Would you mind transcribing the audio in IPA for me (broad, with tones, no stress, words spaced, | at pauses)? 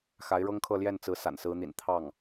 xa˧˥ɪ̯ɻɤ˥ŋkʰɤ˥˧ ljɛ˥˩nt͡sɹ̩˧˥ sa̰˨˩nsɹ̩˧˥n̪ḭ˨˩n t̪ʰɑ˥˩ŋ